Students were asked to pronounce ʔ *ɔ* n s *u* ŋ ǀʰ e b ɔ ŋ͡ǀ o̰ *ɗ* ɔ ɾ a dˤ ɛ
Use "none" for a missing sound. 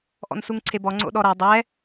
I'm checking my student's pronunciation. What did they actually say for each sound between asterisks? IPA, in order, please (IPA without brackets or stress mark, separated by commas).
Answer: ɔ̰, u, ɗ